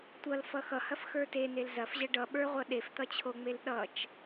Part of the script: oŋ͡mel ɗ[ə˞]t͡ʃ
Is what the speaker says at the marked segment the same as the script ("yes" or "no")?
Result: no